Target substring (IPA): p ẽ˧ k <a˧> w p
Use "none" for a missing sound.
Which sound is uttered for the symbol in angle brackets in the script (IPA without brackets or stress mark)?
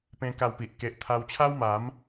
a˧